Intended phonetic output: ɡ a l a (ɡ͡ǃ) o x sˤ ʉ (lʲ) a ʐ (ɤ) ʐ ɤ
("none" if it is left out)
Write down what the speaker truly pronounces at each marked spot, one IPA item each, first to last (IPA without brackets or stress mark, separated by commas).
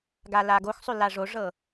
ɡ, l, o